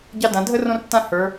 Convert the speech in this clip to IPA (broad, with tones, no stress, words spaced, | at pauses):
ɟɑ˦dã˨˦ dʱə˦ rõ˦rtːã˦ hə˞˨˦